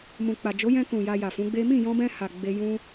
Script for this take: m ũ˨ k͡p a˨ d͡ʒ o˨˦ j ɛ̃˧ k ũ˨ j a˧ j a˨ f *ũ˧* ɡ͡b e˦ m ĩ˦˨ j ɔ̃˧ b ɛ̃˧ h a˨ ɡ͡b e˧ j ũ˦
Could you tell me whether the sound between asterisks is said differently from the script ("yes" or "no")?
yes